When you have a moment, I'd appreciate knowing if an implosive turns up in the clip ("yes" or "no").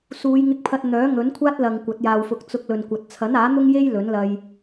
no